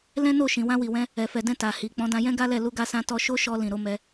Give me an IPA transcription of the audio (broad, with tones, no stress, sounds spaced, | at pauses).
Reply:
l ɛ̃˦ n o˦˨ ʃ ĩ˨ w ã˧ w i˨ w ɛ̃˧ | ɛ˨ f ɛ˨ d ɛ̃˧ t a˨ h i˨ k͡p ɔ̃˨˦ d ã˧ j ɛ̃˦ ɡ a˦ l ɛ˦˨ l u˧ ɡ a˧ s ã˧ t ɔ˧ ʃ o˦ ʃ ɔ˧ l ĩ˨ ɾ o˨˦ m ɛ˧